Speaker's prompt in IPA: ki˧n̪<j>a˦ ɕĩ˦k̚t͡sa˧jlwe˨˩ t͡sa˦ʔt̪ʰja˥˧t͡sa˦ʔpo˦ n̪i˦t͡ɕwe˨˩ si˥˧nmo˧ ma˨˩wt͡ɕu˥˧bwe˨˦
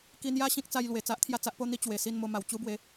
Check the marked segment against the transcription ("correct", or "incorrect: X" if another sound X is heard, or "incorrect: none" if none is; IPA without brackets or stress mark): correct